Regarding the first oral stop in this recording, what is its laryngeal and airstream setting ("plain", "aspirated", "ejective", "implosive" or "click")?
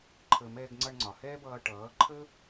click